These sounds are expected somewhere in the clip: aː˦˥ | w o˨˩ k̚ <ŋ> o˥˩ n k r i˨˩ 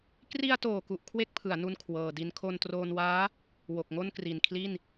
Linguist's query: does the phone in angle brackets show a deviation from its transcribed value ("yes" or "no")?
no